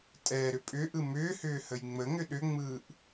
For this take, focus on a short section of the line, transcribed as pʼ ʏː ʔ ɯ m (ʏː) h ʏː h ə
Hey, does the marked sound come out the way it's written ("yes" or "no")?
yes